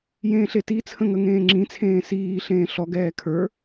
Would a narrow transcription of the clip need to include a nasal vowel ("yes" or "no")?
yes